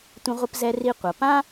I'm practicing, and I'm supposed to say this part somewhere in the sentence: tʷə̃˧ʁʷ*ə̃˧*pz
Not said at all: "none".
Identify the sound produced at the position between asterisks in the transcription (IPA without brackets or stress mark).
ə˧